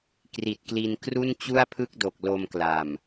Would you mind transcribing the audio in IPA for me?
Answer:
kri˨˩t̚kli˧n kru˥˩n t͡ɕu˥˩a̯pʰɯ˥˩k̚do˨˩k̚ lo˧mkla˨˩m

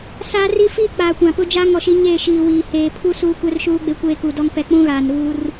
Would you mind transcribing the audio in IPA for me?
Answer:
saː˦ri˦ fiː˦k͡paː˨kʷã˨pʊ˦ d͡ʒa˦ŋɔ˨ʃi˦ɲeː˦˨ ʃiː˨wiː˨ heː˨pʰu˦ suː˦kʷɛ˦rʃuː˦ ɡ͡be˦kʷeː˦ku˨dɔ˦ŋ pɛ˦ k͡pũ˦ɣaː˨n ɾuː˦r

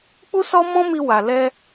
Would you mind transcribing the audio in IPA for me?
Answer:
k͡pu˦sɔ˦ mɔ̃˦mi˧ wa˨lɛ˧

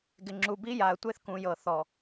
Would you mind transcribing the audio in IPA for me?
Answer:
ɡɪ˨ŋ͡ǁu˨ bi˦ja˨ə̯tʷe˦θ kũ˨jɤ˨ θɔ˨

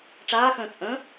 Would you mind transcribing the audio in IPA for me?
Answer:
ʈ͡ʂaːxə̃ː t͡sʼə̃ː

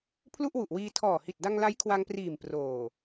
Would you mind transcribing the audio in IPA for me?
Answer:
pʰlu˥˩ʔwu˨˩ʔwiː˧ tʰɔː˨˩hi˨˩t̚ da˧ŋla˦˥j kʰwa˧ŋpriː˨˩m proː˨˩

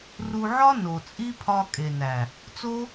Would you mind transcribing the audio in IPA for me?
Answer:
ru˧ʕɒ˦ no˨t͡sʼi˦pʰɒ˧ kʼe˨næ˨ | t͡so˦

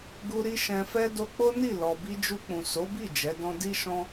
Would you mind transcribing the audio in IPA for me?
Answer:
ɡu˧ɾi˧ ʃɛ̃˨fɛ˧ do˧k͡po˦ni˦˨ lɔ˨bi˧d͡ʒu˧k͡pũ˨ so˨˦bi˦˨ d͡ʒɛ˨˦dɔ̃˦ di˦ʃɔ̃˦

